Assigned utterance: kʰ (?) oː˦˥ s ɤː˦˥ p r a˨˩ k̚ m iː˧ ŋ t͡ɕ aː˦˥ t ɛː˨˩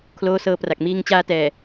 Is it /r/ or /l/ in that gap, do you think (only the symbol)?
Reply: l